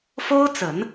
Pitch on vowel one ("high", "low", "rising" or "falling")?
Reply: high